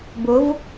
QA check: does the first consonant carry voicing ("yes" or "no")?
yes